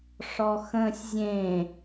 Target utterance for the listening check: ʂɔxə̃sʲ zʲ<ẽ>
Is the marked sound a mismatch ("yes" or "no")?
no